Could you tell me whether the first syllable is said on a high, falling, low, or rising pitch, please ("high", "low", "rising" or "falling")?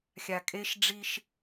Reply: low